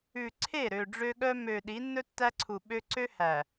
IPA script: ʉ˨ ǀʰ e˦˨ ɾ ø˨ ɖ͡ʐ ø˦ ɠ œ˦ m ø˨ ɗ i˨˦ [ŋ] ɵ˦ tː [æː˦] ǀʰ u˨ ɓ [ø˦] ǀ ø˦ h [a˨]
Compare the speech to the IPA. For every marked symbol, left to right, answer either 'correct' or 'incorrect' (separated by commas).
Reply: incorrect, incorrect, correct, incorrect